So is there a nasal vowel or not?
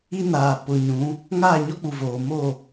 yes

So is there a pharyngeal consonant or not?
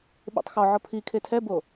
yes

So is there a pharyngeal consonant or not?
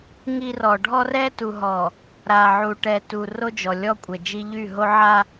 yes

